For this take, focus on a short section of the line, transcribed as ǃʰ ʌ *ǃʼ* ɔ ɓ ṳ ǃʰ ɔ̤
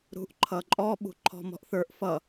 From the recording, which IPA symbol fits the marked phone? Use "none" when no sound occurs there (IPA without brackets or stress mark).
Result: ǃʼ